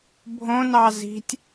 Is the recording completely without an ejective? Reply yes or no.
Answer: yes